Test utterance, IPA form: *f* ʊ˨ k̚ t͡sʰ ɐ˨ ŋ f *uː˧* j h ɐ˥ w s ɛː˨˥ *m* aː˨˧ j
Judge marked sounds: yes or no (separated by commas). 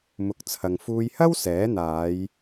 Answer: no, yes, no